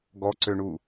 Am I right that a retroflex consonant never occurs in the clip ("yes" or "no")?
no